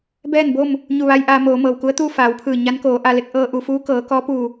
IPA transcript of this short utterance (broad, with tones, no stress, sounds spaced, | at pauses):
b ɛː˥˨ n b o˥˨ m | ɲ u˧˩ ʋ a˧ j ʔ aː˧ m oː˩˧ m ɤː˩ w k u˧˥ ə̯ t̪ uː˥˨ f aː˩˧ w pʰ ɯː˧˩ ɲ a˧˥ n k oː˩˧ ʔ a˧ l e˧ k̚ ʔ ɤː˧ ʔ u˩˧ f uː˧˥ k ɤː˩˧ k ɔː˧˥ p uː˧˩